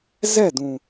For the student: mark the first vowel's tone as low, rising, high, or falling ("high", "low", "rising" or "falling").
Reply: falling